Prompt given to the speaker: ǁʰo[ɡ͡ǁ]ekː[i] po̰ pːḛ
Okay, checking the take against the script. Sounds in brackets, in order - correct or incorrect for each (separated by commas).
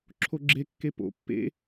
correct, incorrect